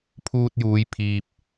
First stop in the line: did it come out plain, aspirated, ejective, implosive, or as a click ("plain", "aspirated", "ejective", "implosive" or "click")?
aspirated